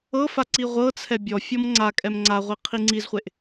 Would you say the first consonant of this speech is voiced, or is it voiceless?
voiceless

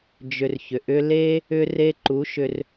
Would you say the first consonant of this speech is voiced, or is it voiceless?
voiced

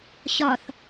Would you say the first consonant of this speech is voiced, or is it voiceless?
voiceless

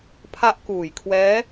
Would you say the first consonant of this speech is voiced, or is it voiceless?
voiceless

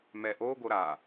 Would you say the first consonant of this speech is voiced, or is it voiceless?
voiced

